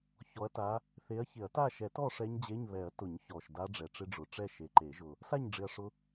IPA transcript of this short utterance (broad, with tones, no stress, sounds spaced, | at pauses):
ç ɔ˨˦ ɐ̯ t a˨˦ | θ e˨˦ ɐ̯ ç ɪ˨˩˦ ɐ̯ t a˥˨ ʃ ɛ˨˩˦ t ɔ˥˨ ʂ ɛ˦˥ ɲ d͡ʑ e˧˥˧ ɲ β ɛ˨˩˦ ɐ̯ t ʊ˨˩˦ ɲ ç ɔ˨˩ ʃ d a˦˥ ɖ͡ʐ ɛ˨˩ ʈ͡ʂ ɪ˦˥ ɖ͡ʐ ʊ˨˩ ʈ͡ʂ ɛ˥˨ ʃ e˨˩ ǃ e˨˩˦ ʒ ʊ˨˩ | s a˥˨ ɲ ɖ͡ʐ ɪ˨˩ ɐ̯ ʂ ʊ˨˦